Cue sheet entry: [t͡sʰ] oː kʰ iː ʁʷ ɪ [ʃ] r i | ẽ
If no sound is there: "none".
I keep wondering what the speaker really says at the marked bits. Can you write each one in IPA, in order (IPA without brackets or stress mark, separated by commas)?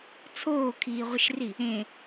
t͡sʰ, ʃ